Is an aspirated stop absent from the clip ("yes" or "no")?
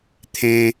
no